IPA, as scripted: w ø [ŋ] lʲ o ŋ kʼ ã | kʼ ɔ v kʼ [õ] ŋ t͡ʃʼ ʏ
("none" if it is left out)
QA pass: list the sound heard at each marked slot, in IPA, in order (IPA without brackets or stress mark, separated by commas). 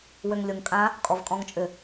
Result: ŋ, ɔ̃